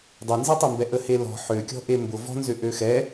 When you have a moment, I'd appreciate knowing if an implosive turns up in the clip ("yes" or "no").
no